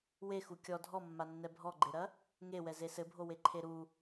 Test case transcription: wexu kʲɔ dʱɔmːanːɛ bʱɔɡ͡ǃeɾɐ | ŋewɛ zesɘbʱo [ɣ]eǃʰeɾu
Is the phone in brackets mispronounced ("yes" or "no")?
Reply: yes